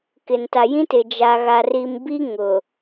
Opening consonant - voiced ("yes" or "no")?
no